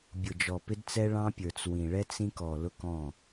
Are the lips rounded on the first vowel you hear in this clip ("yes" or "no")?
yes